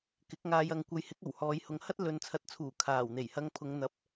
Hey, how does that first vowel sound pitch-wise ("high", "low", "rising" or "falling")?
rising